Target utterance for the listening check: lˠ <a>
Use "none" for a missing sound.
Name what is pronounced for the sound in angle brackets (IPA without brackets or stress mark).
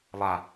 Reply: a